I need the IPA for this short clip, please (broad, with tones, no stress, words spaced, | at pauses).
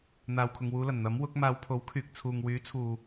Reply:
n̪aː˨wkʰʊ˨ŋwuː˨˧lɐ˨˩n n̪ɐ˨˥mwʊ˨˥k̚ maː˨˧wpʰo˨˥wkʰyː˨k̚ t͡sʰuː˨ŋwyː˨˥t͡sʰuː˨